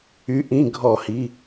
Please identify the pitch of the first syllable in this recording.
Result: rising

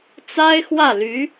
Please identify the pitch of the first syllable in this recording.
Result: high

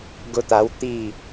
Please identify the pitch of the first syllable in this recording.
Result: high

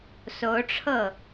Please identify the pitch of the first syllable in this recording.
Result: rising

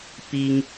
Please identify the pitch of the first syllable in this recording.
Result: high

